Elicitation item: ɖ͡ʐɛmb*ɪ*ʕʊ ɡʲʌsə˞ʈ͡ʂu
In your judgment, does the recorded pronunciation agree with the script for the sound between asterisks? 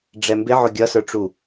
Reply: yes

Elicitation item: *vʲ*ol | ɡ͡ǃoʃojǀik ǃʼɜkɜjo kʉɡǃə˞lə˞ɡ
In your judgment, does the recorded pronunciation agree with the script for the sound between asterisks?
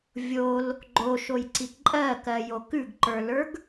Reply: yes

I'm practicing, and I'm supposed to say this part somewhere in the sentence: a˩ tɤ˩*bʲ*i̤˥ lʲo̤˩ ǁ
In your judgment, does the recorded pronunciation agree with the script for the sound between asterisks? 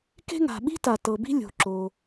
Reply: no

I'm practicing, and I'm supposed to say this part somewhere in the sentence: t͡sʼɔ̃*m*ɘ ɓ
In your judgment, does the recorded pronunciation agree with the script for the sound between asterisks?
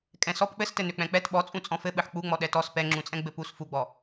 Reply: no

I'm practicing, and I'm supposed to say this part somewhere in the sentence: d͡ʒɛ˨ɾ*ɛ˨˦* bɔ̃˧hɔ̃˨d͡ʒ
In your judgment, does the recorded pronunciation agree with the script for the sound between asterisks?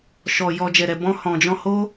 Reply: no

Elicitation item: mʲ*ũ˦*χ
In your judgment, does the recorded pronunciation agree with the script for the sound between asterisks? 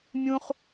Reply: yes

